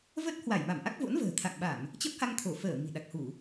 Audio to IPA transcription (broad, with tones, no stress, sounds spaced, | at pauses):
v ə˦˥ t̚ h w a˧˩ j m a˧˩ m ʔ a˦˥ k̚ v o̰˧˥ n v ə̤ː˨˩ t̪ʰ a̰˧˨ ŋ ɓ a˧˩˨ m | t͡ɕ ə˦˥ p̚ h a˧ ŋ t̪ʰ o˧˩ f əː˧˩ m i̤˨˩ ɗ a˨˩ k̚ h u˧˩˨